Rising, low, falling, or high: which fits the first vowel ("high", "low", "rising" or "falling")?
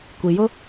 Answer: low